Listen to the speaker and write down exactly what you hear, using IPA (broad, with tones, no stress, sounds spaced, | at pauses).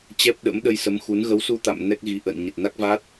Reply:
t͡ɕ ɛ˦˥ p̚ ɗ ə̰˧˥ m ɗ ə˧ j s ə˨˦ m x u˨˦ n ɣ ə˨˦ w s u˧ t̪ a̰˧˨ m n ɛ˦˥ k̚ ɣ i˨˦ ʔ ə̰ː˧˨ n ɲ ə˨˩ t̚ n a˦˥ k̚ v a˦˥ t̚